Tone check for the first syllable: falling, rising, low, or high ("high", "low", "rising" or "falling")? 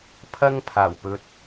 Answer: high